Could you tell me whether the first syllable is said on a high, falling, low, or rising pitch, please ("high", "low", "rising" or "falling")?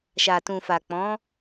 low